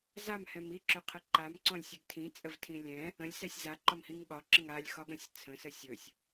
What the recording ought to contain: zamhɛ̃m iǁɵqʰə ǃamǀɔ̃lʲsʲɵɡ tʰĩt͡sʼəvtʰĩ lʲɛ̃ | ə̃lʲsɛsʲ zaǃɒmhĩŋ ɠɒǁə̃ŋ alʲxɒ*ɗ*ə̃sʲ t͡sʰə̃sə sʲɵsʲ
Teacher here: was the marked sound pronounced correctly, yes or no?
no